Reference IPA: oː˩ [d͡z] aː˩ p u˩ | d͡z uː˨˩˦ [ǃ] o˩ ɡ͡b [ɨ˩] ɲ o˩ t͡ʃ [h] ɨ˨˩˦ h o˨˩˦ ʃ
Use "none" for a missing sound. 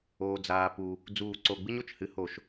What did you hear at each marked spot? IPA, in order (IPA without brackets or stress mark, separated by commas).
d͡z, ǀ, ɨ˥, h